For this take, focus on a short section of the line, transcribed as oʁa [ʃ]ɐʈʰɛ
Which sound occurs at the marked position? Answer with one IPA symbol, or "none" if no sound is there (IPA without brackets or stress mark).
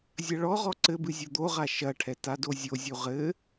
ʃ